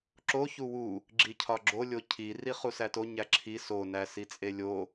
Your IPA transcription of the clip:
ǁ o ç u w u | ɡ͡ǁ i cʰ ɒ ɡ͡ǁ o lʲ o cʰ i r i χ u s æ t o ɲ æ ǁʰ i s o n æ s i t͡sʼ e lʲ o

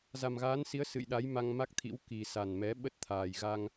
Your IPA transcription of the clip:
z a˨˩ m ɣ aː˨˦ n s i˨˦ ə̯ s ɨ̰˧˨ j ɗ a˨˦ j m a˧ ŋ m a˦˥ k̚ t̪ʰ ḭ˧˥ w k i˨˩ s a˨˩ n m ɛ˨˦ ɓ ə˦˥ t̚ t̪ʰ aː˨˩ j ɣ a˧ ŋ

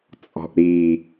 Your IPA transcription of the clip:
t͡sʼ ɔ̤ ʔ ɾ i

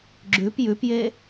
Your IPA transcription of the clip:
ɡ͡ǁ ʉ p j ʉ p j e

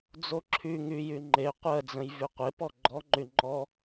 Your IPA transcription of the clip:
d͡z o ǁʰ y ŋ y j y ŋ͡ǃ e qʷ ɜ d͡z ə̃ j v y qʷ e p ɔ ɡ͡ǃ ɔ ŋ͡ǃ y ŋ͡ǃ ɔ

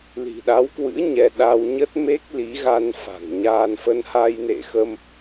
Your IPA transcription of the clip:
l i̤˨˩ ɗ a˨˦ w k w ɨ̰˧˥ ɲ ɛ˧ ɗ a˧ w ɲ ə˦˥ t̚ m e˦˥ k̚ l i˨˦ ɣ a˧ n f a̤˨˩ ŋ ɲ aː˧ n f ə˧ n h a˧ j n ḛ˧˨ x ə˧ m

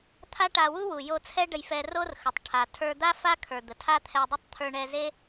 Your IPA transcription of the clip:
t̪ʰ a˥ ʈ a˧ w u˥ w u˩ j o˧ t͡sʰ ɛ˥ ɖ ə˧ j f ɛ˧ r o˥ r x ə˩ tˤ ʈʰ a˩ tʰ ə˞˧ d̪ a˥ f a˥ kʰ ə˞˩ d̪ ə˩ tʰ a˥ t̪ʰ ɛ˧ dˤ ə˥ tˤ t̪ʰ ə˞˧ ɳ ɛ˧ z e˥

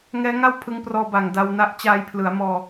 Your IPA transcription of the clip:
ŋ ɛː˦˥ ŋ a˥˩ w pʰ ɯ˧ ŋ p r ɔː˧ b a˨˩ ŋ d a˧ w n a˥˩ ʔ t͡ɕ aː˧ j pʰ l ɯ˩˦ a̯ m ɔː˧

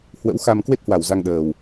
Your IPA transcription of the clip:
h w ə̰˧˥ w x a˨˩ m k w e˦˥ t̚ h w a˧˩ w z a˧ ŋ ɗ əː˨˩ w

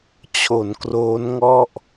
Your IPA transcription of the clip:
t͡ɕʰ o˩˦ n k r oː˦˥ n ŋ ɔ˥˩ ʔ

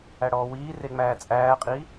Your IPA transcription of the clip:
æ ɽ ɔː w iː r e ŋ͡m æː t͡sʼ æː qʼ iː

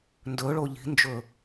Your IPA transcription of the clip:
n d ɵ ɭ o ʎ i̤ n d͡ʒ ɵ

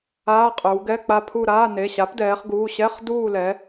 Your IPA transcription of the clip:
aː˧˥˧ qʼ ə˞˩˧ w ɡ ɛ˧˥˧ k͡p a˦˨ pʰ u˦˨ ɾ aː˧˥˧ n e˩˧˩ ɕ a˩˥ p d ɛː˩˧ χ ɡ uː˩˧˩ ɕ ɛ˧˥˧ χ d uː˦˨ l ɛ˩˧

